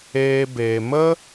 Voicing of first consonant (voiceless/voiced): voiced